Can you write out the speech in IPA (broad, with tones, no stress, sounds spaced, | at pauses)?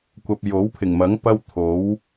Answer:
kʷ ɐ˨ p̚ j o˨˥ w pʰ ɪ˨˩ ŋ m ɐ˨˥ ŋ p ɐ˥ w t̪ʰ o˨˥ w